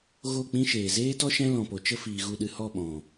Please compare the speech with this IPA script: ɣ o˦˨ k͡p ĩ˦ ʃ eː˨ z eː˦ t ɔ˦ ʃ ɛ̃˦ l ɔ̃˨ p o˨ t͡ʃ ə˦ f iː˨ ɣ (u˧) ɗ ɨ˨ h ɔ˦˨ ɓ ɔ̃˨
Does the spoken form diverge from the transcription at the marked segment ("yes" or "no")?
no